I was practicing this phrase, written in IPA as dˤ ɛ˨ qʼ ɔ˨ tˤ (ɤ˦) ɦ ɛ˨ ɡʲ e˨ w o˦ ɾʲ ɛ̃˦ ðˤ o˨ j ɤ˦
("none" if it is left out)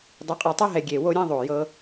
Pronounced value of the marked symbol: ɤ˦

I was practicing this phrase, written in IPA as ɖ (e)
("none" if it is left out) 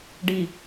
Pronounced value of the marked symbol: i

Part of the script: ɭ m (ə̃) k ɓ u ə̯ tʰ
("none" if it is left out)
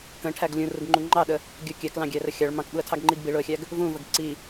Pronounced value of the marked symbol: ɑ̃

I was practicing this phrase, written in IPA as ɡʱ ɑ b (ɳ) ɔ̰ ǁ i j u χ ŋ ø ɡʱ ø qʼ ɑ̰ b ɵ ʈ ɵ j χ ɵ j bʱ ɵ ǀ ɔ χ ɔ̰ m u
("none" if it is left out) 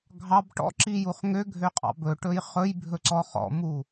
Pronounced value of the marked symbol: ʈ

